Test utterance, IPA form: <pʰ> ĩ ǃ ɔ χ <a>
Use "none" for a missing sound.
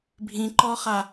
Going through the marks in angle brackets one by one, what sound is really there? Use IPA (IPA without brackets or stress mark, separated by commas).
bʱ, a